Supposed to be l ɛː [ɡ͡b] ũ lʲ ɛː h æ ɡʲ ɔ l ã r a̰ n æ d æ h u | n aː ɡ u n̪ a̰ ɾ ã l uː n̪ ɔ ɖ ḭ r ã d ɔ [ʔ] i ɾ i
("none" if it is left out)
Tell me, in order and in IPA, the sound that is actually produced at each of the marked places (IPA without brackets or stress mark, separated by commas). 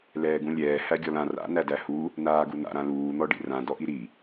ɡ, ʔ